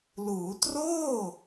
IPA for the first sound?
l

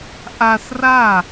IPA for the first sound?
ʔ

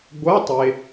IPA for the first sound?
ɡʷ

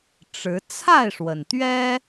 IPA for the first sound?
ʈ͡ʂ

